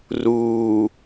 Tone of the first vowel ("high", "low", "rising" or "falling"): low